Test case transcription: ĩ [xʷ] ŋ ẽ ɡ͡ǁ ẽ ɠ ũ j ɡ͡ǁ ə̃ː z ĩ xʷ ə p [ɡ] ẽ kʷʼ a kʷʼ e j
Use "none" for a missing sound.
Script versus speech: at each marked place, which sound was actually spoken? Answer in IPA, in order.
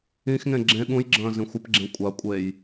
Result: x, ɡ͡ǁ

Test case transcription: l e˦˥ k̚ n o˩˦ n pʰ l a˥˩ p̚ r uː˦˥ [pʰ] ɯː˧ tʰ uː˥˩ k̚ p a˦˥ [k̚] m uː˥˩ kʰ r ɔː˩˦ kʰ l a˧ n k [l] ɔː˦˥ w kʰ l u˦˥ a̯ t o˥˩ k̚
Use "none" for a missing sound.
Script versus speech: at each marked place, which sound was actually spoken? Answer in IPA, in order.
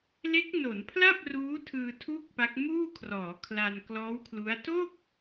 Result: tʰ, k̚, l

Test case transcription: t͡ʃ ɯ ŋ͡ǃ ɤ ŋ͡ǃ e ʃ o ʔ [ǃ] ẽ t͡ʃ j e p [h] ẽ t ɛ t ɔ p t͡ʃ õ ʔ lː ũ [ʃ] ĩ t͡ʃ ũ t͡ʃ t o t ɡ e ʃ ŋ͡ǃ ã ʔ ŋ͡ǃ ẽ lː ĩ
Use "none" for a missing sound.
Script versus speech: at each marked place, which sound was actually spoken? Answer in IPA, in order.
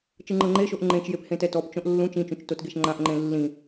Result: ŋ͡ǃ, h, t͡ʃ

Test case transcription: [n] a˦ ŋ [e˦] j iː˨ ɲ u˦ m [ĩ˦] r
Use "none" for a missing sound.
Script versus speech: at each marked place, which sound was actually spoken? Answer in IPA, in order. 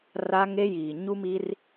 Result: r, e˦, i˦

